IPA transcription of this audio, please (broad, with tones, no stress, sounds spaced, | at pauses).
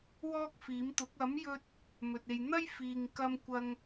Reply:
w ɔː˥ k̚ f iː˨˥ m t̪ ʊ˨˥ k̚ ɐ˨˥ m j ɵ˧ t̚ | m ɵ˧ t̚ e˧ j n̪ ɐ˥ j f iː˨ ŋ k ɐ˧ m kʷ ɐ˧ ŋ